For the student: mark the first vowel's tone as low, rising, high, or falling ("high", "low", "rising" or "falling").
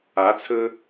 rising